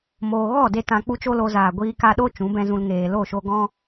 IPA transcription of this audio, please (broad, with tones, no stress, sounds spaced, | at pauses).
m oː˧ ɣ ɔ˦˨ d e˧ t ã˧ k͡p u˦ t͡ʃ o˦ l o˧ z aː˨ ɡʷ iː˧ k a˧ ɗ o˦ t͡ʃ ũ˨˦ b ɛ̃˦ z ũ˧ l ŋ eː˨ l o˦˨ ʃ o˧ ɡ ɔ̃˧